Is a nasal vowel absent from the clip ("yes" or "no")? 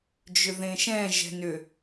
no